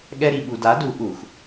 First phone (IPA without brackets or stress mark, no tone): ɠ